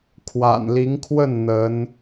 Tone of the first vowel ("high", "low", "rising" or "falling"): low